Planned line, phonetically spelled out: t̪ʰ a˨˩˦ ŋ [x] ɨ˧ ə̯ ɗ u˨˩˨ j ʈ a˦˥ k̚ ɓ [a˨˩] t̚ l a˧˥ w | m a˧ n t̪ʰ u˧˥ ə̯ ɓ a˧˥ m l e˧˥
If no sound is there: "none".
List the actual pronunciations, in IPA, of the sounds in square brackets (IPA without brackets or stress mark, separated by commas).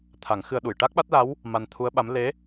x, a˦˥